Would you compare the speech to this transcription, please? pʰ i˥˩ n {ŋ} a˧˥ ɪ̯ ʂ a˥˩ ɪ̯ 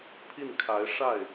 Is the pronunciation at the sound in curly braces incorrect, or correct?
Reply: incorrect: kʰ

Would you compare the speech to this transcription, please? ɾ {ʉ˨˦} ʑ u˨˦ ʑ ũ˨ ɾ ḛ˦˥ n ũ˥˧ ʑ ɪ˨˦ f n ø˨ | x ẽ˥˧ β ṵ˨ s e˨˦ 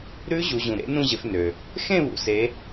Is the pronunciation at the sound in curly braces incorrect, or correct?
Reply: incorrect: ʉ˦˥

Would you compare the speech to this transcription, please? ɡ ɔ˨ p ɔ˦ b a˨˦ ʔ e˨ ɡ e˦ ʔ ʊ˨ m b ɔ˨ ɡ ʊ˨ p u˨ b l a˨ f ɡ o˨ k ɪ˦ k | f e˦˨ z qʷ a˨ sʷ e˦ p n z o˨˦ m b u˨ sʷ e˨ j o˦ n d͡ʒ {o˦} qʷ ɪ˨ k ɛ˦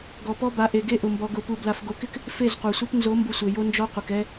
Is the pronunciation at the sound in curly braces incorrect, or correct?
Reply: incorrect: ɔ˦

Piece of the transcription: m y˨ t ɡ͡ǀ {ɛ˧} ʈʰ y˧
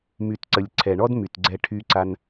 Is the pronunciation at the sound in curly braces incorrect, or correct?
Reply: correct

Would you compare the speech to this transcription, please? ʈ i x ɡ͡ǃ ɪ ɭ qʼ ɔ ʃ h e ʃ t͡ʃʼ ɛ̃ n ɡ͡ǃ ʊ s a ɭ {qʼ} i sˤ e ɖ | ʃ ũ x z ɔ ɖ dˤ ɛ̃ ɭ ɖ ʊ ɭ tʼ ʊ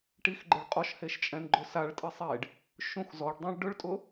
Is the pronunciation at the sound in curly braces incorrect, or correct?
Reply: incorrect: tʼ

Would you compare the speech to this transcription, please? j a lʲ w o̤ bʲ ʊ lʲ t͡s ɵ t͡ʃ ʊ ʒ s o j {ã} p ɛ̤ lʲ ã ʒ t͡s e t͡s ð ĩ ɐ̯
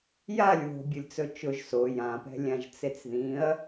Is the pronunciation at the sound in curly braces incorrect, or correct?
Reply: correct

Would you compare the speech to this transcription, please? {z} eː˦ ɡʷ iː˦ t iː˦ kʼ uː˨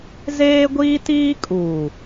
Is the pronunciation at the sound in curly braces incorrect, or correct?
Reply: correct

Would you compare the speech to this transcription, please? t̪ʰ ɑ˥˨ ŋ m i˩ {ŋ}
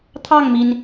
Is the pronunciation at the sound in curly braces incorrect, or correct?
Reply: incorrect: n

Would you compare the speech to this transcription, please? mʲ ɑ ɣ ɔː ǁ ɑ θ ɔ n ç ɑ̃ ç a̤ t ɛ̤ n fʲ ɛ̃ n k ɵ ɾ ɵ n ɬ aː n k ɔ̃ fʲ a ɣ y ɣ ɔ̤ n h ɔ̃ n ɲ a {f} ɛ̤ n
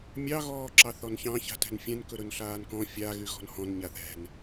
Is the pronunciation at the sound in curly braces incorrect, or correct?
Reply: incorrect: θ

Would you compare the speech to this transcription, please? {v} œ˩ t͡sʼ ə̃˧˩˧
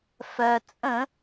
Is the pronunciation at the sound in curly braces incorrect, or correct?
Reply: incorrect: f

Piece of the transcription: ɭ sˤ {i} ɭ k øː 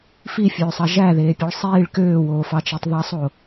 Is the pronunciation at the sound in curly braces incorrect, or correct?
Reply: incorrect: iː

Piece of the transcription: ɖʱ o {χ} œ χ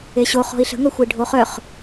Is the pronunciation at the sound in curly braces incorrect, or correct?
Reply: correct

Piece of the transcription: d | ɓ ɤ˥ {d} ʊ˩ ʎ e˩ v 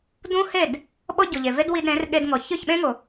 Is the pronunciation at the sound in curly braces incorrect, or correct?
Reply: incorrect: ɟ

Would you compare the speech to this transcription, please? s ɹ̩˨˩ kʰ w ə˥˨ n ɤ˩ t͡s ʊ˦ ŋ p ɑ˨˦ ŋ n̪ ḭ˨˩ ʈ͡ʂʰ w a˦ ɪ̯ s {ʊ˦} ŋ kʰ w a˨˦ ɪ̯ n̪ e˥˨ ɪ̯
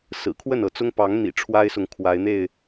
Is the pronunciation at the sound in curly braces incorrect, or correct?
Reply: incorrect: ʊ˨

